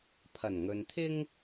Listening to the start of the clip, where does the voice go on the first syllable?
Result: low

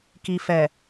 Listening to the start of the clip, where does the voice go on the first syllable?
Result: low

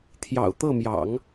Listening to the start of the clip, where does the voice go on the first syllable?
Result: low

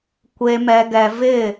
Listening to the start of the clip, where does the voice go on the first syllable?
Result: low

